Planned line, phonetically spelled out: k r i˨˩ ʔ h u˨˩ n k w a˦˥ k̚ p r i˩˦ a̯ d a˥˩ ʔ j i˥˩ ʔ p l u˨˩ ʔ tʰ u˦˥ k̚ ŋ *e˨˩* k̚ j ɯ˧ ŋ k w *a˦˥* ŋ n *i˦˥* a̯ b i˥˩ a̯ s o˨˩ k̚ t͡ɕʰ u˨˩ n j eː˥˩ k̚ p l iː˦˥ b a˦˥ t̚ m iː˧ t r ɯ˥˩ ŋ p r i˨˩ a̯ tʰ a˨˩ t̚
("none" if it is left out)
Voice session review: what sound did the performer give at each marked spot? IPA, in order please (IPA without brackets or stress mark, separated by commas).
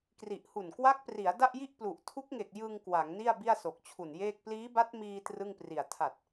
e˨˩, a˩˦, i˥˩